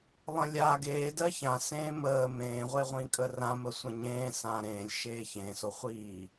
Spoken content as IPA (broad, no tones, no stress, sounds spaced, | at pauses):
lˠ ə̃ lʲ a ɡ eː d ɜ ç ã s ẽː m əː m ẽː ʁʷ e ʁʷ ĩ kʼ ə r ã m ə sʷ ə̃ ɲ ẽː s ã ɾ ẽː lʲ ʃ eː ç ẽ s o χʷ iː